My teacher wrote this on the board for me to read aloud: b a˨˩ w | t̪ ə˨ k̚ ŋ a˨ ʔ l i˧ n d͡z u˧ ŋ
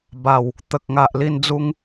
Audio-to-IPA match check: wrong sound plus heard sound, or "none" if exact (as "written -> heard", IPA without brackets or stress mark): none